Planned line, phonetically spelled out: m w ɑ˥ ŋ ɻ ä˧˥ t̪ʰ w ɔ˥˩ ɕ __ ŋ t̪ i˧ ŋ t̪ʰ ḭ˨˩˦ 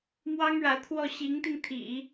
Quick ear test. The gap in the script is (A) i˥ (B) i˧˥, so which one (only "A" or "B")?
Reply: B